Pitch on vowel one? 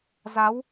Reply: rising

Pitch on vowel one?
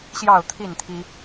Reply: falling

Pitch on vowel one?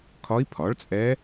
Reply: rising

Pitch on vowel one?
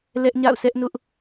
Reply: high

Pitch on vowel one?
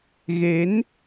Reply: rising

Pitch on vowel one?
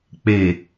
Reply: low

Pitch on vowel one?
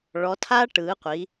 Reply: rising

